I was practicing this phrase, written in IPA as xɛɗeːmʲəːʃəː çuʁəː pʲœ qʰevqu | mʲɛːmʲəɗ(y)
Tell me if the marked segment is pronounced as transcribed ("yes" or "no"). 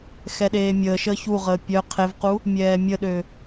no